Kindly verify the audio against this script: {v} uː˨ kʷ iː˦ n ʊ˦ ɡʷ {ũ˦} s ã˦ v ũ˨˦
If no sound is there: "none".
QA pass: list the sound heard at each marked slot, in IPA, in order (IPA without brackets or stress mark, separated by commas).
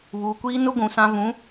β, ũ˨